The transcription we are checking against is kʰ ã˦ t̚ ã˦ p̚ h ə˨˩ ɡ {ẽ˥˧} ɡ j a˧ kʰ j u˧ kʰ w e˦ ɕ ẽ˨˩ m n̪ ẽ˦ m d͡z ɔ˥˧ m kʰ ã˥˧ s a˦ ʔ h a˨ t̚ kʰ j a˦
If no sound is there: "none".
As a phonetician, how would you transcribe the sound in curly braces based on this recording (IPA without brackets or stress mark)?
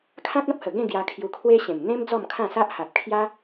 ẽ˥˧